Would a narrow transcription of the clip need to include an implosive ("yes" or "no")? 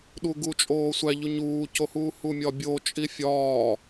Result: yes